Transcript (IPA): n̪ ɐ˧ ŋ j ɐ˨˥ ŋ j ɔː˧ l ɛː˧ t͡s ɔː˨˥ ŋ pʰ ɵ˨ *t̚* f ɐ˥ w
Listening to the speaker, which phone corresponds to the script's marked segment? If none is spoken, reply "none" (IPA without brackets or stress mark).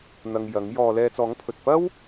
t̚